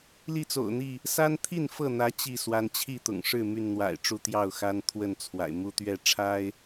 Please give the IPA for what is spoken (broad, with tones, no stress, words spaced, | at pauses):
li˥˨t͡so̰˨˩ʊ̯n̪i˥˨ | sa˦nt̪ʰi˥˨nfɤ˥˨n̪ä˨˦ t͡ɕi˥˨swa˨˦n t͡ɕʰi˥˨t̪ʊ̰˨˩ŋʂɻ̩˥˨ my˥˨nn̪wa̰˨˩ɪ̯ʈ͡ʂu˥˨ t̪jɑ˥˨ʊ̯xa˦n t̪ʰwə˥˨nt͡sʰwa̰˨˩ɪ̯ mu˦t̪ɥɛ˥˨ ʈ͡ʂʰa˦ɪ̯